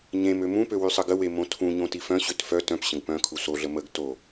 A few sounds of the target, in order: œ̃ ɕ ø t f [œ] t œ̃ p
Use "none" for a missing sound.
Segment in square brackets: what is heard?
œ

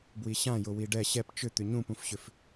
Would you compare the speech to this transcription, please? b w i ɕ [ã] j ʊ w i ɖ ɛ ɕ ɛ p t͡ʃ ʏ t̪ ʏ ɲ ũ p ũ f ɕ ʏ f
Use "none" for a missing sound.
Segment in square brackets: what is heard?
ã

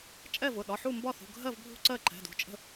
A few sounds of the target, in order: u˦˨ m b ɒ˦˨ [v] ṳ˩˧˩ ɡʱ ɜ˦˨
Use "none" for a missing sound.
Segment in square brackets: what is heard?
θ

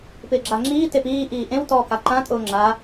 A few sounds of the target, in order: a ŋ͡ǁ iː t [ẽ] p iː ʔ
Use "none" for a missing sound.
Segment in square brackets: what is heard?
e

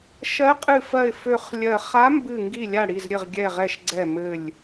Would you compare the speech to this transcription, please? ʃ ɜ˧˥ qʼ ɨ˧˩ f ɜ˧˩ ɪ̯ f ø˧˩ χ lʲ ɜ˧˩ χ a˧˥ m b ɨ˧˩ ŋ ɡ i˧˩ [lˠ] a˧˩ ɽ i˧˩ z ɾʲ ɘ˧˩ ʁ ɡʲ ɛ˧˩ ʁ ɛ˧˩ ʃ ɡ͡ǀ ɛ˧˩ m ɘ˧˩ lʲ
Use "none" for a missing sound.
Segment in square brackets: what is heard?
lʲ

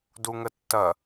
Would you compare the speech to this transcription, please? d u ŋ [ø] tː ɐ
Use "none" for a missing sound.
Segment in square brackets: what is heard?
ə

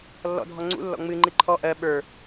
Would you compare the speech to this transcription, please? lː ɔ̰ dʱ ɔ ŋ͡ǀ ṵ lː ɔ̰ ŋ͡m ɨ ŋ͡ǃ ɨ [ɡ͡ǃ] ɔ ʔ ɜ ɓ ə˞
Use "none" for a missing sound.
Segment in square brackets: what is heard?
ǃʰ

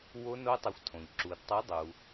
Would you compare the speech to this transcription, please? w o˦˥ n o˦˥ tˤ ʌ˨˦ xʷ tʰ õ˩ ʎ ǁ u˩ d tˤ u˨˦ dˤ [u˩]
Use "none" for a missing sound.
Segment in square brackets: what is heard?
u˩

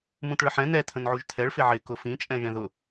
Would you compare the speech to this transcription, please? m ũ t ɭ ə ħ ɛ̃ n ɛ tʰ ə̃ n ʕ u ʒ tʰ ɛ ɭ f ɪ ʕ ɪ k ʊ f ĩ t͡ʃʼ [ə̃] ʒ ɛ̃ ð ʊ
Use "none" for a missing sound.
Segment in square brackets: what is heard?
ɛ̃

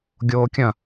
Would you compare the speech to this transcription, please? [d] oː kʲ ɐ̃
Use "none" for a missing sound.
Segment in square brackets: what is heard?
ɡʲ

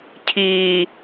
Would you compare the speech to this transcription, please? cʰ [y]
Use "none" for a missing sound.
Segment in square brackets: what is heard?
i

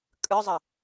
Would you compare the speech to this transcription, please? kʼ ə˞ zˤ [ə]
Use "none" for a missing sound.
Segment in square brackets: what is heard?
ə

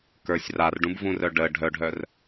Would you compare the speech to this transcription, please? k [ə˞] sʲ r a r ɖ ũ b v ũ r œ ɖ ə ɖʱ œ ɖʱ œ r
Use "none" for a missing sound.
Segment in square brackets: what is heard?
ə˞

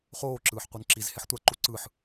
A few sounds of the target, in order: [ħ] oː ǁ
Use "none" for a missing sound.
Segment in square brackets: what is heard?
χ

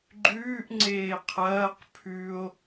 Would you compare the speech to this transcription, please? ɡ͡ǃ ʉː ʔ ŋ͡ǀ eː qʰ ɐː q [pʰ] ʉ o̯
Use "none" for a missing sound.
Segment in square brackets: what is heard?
pʰ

